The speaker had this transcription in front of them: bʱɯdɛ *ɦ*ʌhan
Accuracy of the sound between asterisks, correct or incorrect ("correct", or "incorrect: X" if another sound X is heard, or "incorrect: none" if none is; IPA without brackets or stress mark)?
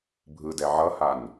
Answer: incorrect: ʕ